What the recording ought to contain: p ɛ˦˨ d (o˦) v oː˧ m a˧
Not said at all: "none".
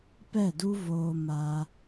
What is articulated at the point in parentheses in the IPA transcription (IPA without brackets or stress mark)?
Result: u˦